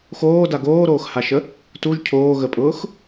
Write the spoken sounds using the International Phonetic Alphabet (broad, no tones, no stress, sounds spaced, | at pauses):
x oː d a ɡ oː ɾ oː x h a ʃ ə | t u ʒ cʰ oː ɣ ə pʼ ʊː x